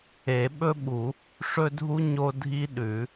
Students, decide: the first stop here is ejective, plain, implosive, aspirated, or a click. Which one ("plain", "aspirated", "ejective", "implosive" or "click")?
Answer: implosive